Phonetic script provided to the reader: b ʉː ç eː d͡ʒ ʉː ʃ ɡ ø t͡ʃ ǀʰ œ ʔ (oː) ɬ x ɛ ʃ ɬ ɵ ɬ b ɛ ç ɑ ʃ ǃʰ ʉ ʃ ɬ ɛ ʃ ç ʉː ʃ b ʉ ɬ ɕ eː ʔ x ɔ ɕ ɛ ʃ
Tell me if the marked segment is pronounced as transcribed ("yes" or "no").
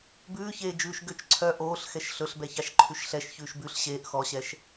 yes